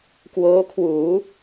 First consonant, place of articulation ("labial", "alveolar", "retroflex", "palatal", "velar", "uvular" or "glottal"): velar